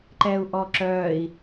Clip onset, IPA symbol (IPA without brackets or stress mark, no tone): ǃ